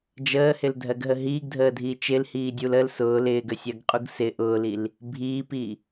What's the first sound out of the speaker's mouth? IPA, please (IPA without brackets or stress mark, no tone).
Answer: d͡ʒ